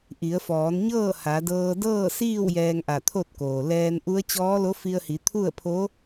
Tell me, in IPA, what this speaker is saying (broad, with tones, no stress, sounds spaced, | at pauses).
ʔ i˩˧ ə̯ f ɔː˩˧ n ɲ ɤː˥˨ h a˩˧ d ɤː˧ d ɤː˥˨ s iː˥˨ w j ɛː˧ ŋ ʔ a˧˩ t̪ʰ o˥˨ t̚ k oː˩ l ɛː˧ n ʔ u˧˥ ə̯ t͡ɕ ɔː˧˥ l o˧˥ f i˧ ə̯ h i˩˧ t̪ʰ u˥˨ ə̯ pʰ o˧˥